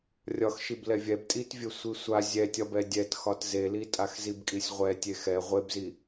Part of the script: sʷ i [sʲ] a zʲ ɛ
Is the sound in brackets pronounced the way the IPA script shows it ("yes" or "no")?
no